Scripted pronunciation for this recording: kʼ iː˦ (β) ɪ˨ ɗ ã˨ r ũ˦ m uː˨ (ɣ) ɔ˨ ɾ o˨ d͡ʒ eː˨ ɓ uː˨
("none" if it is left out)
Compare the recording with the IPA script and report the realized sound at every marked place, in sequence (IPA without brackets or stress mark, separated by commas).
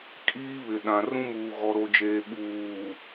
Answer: β, ɣ